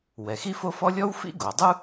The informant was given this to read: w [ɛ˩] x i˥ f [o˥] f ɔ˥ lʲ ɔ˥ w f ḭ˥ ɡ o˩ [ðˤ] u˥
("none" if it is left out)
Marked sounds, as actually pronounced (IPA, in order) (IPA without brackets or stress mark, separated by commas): ɛ˩, o˥, dˤ